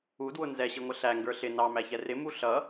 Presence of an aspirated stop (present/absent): absent